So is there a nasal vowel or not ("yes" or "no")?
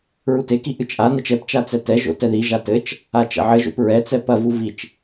no